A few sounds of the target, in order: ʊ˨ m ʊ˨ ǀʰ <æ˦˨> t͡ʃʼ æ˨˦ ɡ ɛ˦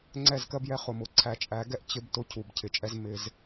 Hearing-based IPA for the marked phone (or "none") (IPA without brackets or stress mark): æ˨